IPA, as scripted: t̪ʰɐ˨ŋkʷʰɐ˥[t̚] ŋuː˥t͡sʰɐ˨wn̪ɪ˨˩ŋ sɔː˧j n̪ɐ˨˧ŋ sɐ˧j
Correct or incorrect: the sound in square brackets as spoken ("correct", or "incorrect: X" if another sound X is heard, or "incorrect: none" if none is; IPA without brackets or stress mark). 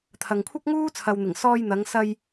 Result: incorrect: k̚